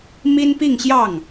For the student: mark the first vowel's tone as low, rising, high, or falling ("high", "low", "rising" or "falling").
high